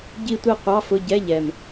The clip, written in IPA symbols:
ɟi˥˧tʷi˥˧ qʷɑ˧˥˧fʊ˧˥˧ ɟɛ˧˥˧ʎɛ˨˩m

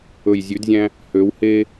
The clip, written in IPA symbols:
ɵ˨jzʲʉ˨˦dzʲæ̃˦ | hø˨˦whe˦

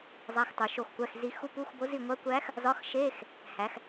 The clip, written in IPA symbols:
zˤæ˧˥˧xtˤu˩˧ʃo˦˨xkʷæ˧˥˧x zi˧˥x u˧˥˧pu˧˥˧xbo˧˥ zi˦˨ ŋʷæ˧˥kʷæ˧˥x | zɒ˧˥xʃe˧˥˧x | hæ˩˧x

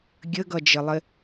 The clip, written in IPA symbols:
ɡʲəɡʌd͡ʒəlˠɪ

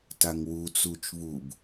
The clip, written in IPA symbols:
taŋwut͡sut͡ʃ βub

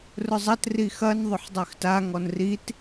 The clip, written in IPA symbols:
rʊzˤɐt rixɐn ðˤʊħdˤøxta ŋɔnrit

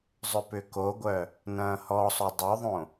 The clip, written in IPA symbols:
zˤʏpʏkoɡʷœ | nɐ̃ːhɔsˤo dˤøðˤõ

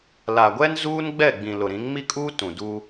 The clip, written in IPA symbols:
la˨ɡʷɛ˦n zuː˦nɡ͡bɛ˦˨ɡ͡bĩ˨ lʊ˨ɾĩ˨˦ŋmi˦kʼuː˦ tũ˨ du˦

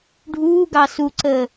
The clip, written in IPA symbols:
ɖʱuːɡɑ suǀəː

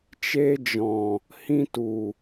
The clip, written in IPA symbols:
t͡ʃeː˧d͡ʒɔ̃˨ | hĩ˧tu˨

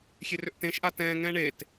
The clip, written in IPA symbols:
xʲerʏʔtẽʃʔa tɛ̃ːŋɛ̃ː ɳet

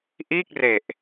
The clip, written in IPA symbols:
ʔiː˥˩k̚re˨˩ʔ

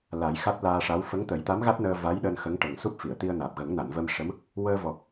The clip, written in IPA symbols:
la˨˩˦jxa˦˥t̚ laː˧ʂa˧˥w fə˧˥ŋt̪ə˨˩˦jt̪a˧˥mɣa˦˥t̚ nəː˧va˧˥jɗəː˧n xə˧˥ŋʈə˨˩ŋ su˦˥p̚fi˨˩˨ə̯t̪i˧ə̯naː˨˩p̚ ɣə˨˩˦ŋna˨˩˨nvə˧mʂə˧˥m | wəː˧vɔ˨˩k̚

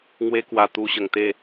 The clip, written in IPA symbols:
ŋwe˦kwa˧t̪u˧ ɕə˨˩ŋt̪e˥˧

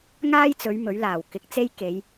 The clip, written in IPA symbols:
ŋaː˥jt͡sɵ˨˧ɥ mɵ˨˥ɥlaː˨˩w kɪ˨˥k̚t͡se˥j ke˨˧j

